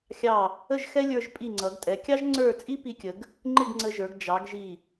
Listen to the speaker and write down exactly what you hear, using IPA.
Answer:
xʲ ɑ˧˩ | ə˥˧ ʒ x ɛ˥ lʲ ə˞˧ ʒ pʼ i˧˩ ŋ͡ǀ ʌ˩˧ ɡ tʼ ɛ˩˧ kʲ ɑ˥ ʒ ŋ͡ǀ ə˞˥˧ t͡sʼ i˥ p i˧ kʲ ə˩˧ ɡ | ŋ͡ǃ ɪ˥˧ ɡ ŋ͡ǀ ə˧ ʒ ə˞˩˧ ɡ d͡ʒ ɑ˩˧ ɡ ʒ i˧˩

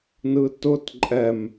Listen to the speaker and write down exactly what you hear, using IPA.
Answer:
n ɯ t ʊ t ǃʼ ɛ m

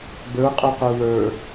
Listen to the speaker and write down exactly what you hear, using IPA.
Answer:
b ə˞ qʼ o q o w ə˞

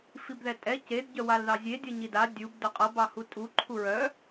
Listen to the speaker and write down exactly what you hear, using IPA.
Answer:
f i b ð ɛ tʼ ɛ c e d ɟ œ w a l ð ɑ zʲ e dʲ ʌ ɲ i d a dʲ u b d œ qʼ ʌ b ɑ h u tʼ u ǃʰ u ɹ œ

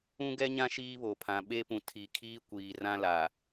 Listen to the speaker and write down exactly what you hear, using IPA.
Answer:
ũ˦ ɡ ɛ˦ ɲ ã˦ ʃ iː˦ β o˨ pʰ ã˨ ɓ e˦ p ũ˨ tʰ i˨ kʰ iː˦ kʷ iː˨ r ã˦ l a˨

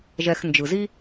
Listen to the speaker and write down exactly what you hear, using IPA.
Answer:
ʒ ɛ˨ x n d͡ʒ ɯ˩ z i˦

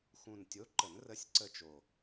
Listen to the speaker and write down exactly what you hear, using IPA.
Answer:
x ũ˨˩ n tʲ o˨˥ ǃ ə˨˩˦ n r ə˨˥ sʲ ǀ ə˦˨ t͡ʃ o˨˩

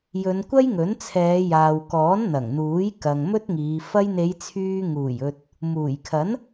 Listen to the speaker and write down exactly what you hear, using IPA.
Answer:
j ɵ˨˧ n kʷ ɐ˥ j ŋ ɵ˨˥ n t͡sʰ ɛː˨˧ j aː˨ w k ɔː˨˥ n n̪ ɐ˨˩ ŋ n̪ uː˨˥ j k ɐ˨ ŋ m ɵ˥ t̚ ŋ iː˨˧ f ɐ˧ j n̪ e˨˧ j t͡sʰ yː˧ ŋ uː˨˩ j ɵ˨ t̚ | m uː˨˩ j kʰ ɐ˨˥ n

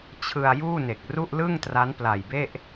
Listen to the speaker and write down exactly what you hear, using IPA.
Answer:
t͡ɕʰ ɯ˧ a̯ j uː˥˩ n e˨˩ k̚ r u˥˩ ʔ l ɯ˥˩ ŋ t r a˦˥ n p l a˨˩ j b e˥˩ ʔ

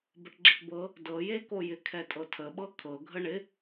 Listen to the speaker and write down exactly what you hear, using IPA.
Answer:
b ə ʈ ɡ͡ǁ ɪ ʈ b ɤ | d ɤ j e k o j ɪ kʰ ɛ tʼ ɤ tʰ ə ɓ ɤ kʰ ɤ ɡʱ ə ɳ ɪ

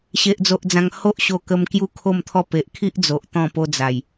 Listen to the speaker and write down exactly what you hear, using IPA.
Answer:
ɕ e˨ ʔ d͡z o˨ ʔ d͡z ã˨˩ ŋ h o˦ ʔ ɕ o˧ k ə˧ m k j u˥˧ kʰ o˥˧ m t̪ʰ ɔ˥˧ p e˨ ʔ kʰ i˦ ʔ d͡z o˨ ʔ t̪ ɔ̃˥˧ p o˦ d͡z a˨˩ j

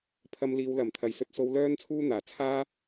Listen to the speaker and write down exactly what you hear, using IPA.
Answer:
pʰ ɐ˧ m l iː˨˧ w l ɐ˨˩ m t̪ʰ ɐ˨˩ j s ɵ˨ t̚ s o˧ w l œː˥ n t͡sʰ uː˥ n̪ aː˨˩ t͡sʰ aː˥

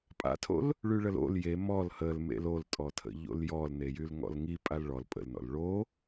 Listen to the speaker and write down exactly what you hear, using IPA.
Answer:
pʼ a̰ tʰ o̰ l | ɭ y ɭ ə l o̰ l j e m ɔ l h ə l m ḛ l o l tʼ ɔ tʰ ə̰ ʎ o̰ l j ɔ l n e j y l ŋ ɔ̰ l ŋ i pʼ a l ɭ ɔ l pʼ ə̰ l n ɔ̰ l ɭ o

